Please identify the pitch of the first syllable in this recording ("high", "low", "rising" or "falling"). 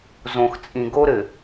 low